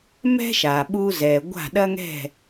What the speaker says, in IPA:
m ɛ̤˥ ʃ a˩ ɓ u˧ z ɛ˩ ɡʷ a̤˥˩ ɗ ɐ˥ ŋ ɛ̤˥˩

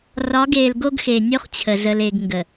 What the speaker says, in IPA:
r ɒ˨˦ ɡ eː˨ l ɡ o˦ ɡ x e˨ nʲ o˦ χ t͡ɕʰ ə˨ z ə˨ l e˨ ɡ ŋ ɡ ə˨

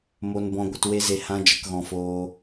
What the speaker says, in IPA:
m o˧ n b ɔ̃˧ ɡʷ ə˧ t w e˦ z e˧ h ã˦ d͡ʒ ə˧ k ɣ ɔ̃˧ f oː˧

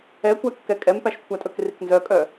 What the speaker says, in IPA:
ɛ kʷ æ kː ɛ kʼ ɛ m p æ ʃ kʷʰ æ tʼ ɵ k r i k n z œ kʼ œ

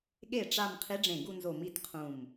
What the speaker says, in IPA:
ɠ e˧˩ ʈ͡ʂ a˥˧ m qʰ i˧˥ ɖ͡ʐ ẽ˧˩ ɡ u˥˧ n z o˧˩ m i˥˧ t qʰ ũ˧˩ m

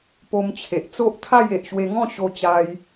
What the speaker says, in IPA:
p o˧ m t͡ɕʰ e˨ ʔ t͡s o˦ ʔ t̪ʰ a˥˧ j e˨ ʔ ɕ w e˧ ŋ ɔ̃˥˧ ɕ o˧ t͡ɕ a˧ j

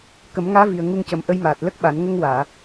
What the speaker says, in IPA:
k ə˨˩˦ m ŋ aː˧˥ v i˨˩ ə̯ ŋ u˧ ŋ c ə˨˩ m ʔ ə˧˥ j m aː˨˩ t̚ l ə˦˥ k̚ ɓ a˨˩˦ n ŋ ə˧ ŋ w aː˨˩˨

